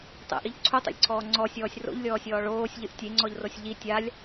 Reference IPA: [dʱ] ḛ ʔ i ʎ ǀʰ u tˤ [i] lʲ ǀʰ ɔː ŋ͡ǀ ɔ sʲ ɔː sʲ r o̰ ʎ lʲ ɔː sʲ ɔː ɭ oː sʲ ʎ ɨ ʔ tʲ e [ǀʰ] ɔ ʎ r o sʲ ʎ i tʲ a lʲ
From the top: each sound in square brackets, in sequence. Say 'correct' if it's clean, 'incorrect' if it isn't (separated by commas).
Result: incorrect, incorrect, incorrect